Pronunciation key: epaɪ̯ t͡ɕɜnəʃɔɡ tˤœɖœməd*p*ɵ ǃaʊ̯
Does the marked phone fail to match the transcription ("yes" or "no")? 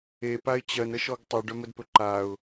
no